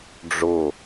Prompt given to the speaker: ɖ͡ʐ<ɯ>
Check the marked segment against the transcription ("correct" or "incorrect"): incorrect